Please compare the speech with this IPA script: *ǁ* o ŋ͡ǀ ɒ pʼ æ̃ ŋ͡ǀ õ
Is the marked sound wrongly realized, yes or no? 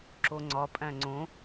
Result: no